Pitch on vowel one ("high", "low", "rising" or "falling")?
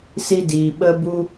high